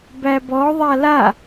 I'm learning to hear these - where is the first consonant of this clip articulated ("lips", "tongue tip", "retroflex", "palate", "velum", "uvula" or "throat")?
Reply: lips